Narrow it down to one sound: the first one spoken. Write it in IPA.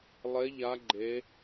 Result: lˠ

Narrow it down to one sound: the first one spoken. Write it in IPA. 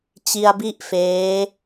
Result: t͡ɕ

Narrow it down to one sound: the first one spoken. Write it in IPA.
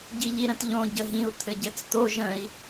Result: ɟ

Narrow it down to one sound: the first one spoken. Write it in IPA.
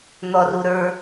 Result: n̪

